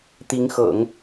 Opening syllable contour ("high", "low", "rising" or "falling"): rising